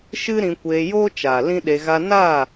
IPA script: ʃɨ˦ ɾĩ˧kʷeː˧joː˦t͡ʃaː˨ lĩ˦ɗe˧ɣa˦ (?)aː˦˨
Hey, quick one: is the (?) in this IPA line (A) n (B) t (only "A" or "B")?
A